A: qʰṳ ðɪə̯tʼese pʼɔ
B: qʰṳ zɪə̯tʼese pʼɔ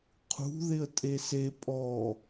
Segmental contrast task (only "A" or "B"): A